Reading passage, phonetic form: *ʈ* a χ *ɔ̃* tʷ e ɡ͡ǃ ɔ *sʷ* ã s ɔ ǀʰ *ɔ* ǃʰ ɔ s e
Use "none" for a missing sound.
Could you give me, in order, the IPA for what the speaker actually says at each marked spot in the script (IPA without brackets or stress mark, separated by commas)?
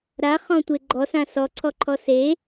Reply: ɾ, ɔ̃, s, ɔ